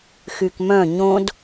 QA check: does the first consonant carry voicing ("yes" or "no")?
no